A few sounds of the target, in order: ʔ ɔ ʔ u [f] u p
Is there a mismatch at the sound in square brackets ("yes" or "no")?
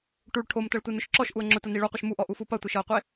no